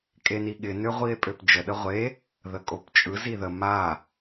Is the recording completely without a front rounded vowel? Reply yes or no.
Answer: no